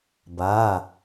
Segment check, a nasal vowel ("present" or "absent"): absent